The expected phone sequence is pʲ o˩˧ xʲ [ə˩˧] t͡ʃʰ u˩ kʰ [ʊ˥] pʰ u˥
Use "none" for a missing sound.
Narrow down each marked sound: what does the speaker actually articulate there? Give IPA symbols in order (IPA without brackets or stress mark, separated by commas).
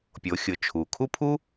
ʊ˩˧, u˥